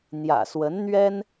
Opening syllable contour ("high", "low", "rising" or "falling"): low